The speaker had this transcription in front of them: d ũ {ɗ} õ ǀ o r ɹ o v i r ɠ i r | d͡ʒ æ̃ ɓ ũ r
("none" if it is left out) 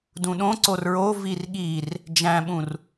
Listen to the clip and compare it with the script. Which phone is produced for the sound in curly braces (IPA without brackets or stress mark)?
ɗ